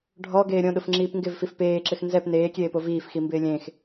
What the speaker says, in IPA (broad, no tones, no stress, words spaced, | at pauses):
ɖʱɔɡeː ɾʲõɗʊfŋ͡ǁiːp ŋɡɪvfif peːǁɪx nzɛp neːkʲeːpo viːfximbɪː lʲẽx